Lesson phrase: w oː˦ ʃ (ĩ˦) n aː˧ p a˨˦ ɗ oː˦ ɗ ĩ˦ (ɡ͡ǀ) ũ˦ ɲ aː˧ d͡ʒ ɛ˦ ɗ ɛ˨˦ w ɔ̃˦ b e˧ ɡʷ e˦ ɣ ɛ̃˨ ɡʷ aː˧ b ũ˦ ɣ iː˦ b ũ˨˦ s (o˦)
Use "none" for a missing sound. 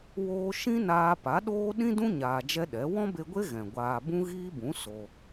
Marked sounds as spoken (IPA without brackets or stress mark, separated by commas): ĩ˦, d, o˧